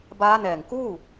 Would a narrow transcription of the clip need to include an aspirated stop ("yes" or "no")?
no